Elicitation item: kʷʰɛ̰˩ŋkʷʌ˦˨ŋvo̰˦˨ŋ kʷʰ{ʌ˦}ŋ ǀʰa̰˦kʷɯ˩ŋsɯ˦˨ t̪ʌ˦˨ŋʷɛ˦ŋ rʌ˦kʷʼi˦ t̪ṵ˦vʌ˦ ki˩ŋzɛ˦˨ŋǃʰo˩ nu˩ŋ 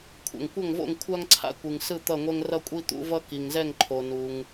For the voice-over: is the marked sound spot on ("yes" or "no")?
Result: no